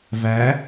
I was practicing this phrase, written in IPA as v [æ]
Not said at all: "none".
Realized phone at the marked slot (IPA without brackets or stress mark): æ